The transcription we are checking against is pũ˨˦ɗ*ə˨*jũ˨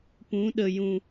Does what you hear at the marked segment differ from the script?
no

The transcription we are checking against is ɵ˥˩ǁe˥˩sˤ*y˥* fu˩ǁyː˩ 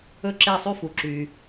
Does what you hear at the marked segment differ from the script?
no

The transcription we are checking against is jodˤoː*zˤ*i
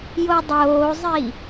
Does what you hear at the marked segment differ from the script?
no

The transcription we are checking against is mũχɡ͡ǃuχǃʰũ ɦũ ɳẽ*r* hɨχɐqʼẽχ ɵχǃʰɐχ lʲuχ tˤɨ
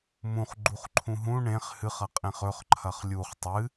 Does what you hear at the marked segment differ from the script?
yes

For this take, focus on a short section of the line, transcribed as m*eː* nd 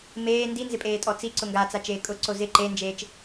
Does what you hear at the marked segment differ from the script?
no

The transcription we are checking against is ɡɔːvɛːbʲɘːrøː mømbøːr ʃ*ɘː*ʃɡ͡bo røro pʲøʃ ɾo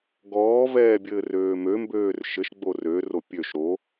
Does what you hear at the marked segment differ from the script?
yes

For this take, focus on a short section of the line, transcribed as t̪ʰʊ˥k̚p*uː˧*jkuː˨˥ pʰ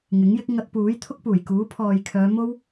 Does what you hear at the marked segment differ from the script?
yes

